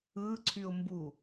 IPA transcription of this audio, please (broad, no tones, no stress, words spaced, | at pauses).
ɯǀʰyʊ̯mbu